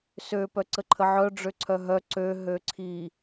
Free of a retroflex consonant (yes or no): no